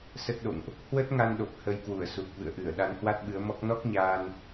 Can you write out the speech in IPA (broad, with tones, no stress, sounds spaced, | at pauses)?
s ə˦˥ t̚ ɗ o̰˧˨ ŋ ʔ | h w ə˦˥ t̚ ŋ a˧ n ɗ o˨˩ p̚ h ə˧ j k w u˧˩ ə̯ s u˨˩ k̚ v ɨ̰˧˨ ə̯ ʔ ɨ˧˩ ə̯ ɗ a˨˦ n h w a˦˥ t̚ ɓ ɨ˨˦ ə̯ m ɔ˦˥ k̚ n ɔ˦˥ k̚ ɲ aː˧ n